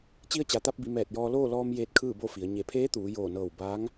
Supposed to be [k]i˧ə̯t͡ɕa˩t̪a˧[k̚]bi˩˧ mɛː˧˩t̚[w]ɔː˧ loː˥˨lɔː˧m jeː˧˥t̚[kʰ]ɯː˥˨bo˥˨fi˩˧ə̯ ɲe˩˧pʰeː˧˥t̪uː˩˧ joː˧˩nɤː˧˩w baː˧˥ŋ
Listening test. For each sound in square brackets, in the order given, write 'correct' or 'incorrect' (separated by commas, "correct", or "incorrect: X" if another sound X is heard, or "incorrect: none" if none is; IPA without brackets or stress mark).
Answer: incorrect: t͡ɕ, incorrect: p̚, incorrect: j, correct